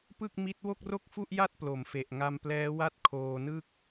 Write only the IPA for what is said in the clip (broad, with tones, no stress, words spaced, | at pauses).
pɯ˥˩k̚mi˦˥t̚ wo˥˩k̚ro˥˩k̚fu˥˩ʔja˥˩t̚ plo˩˦mfe˨˩ʔ ŋa˧mplɛː˦˥ wa˥˩t̚kʰoː˧nɯ˥˩k̚